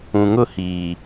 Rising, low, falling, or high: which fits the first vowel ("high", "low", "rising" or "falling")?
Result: low